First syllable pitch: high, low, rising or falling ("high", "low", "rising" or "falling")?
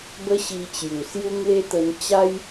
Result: high